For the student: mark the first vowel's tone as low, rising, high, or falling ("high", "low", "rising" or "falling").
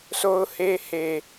high